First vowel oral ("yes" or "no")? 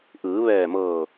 yes